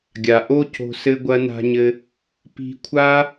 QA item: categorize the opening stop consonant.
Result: plain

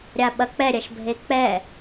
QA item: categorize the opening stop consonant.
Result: implosive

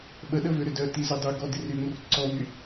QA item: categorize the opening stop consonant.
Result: implosive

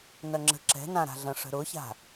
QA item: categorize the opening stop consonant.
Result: click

